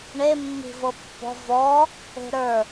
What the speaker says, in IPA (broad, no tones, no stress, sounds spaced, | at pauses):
ɳ e mː i̤ v ɤ pː ɔ̤ v ɔ | e̤ ɾ ə˞